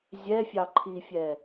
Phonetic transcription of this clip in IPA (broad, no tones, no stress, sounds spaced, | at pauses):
zʲ ɛ fʲ ɑ ǃʰ i fʲ ɛ